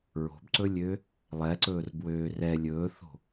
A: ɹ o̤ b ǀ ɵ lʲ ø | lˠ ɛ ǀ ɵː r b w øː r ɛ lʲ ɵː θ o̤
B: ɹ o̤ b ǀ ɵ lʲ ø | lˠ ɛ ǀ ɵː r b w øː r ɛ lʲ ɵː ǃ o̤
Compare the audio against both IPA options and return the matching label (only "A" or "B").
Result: A